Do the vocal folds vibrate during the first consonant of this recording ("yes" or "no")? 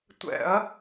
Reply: no